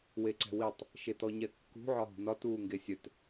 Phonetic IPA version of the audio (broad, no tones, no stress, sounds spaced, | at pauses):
w e ǀ ɛ̤ w i tˤ | ʃ e t ɔ ɲ ɛ kː ṳ ʕ ɒ ɦ ṳ n ɒ t uː ŋ ɡ e sʲ œ t